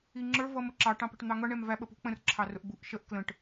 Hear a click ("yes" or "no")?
yes